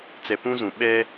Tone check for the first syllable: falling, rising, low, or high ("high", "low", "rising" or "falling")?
low